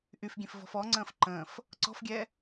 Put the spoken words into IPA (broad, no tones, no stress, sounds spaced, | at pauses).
ʔ y f ɡʲ ẽ f v ɔ̤ f ɔ ŋ͡ǀ ə̃ː f ǃ ə̃ː f | ǀ ɔ̤ f ɡʲ ɛ